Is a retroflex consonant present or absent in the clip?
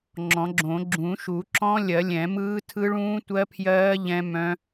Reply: present